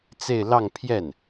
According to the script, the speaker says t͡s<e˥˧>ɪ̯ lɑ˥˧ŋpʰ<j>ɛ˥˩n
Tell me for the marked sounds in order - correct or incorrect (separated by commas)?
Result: correct, correct